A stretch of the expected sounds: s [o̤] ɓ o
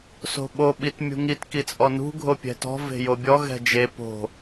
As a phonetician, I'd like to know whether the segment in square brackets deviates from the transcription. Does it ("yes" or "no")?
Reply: no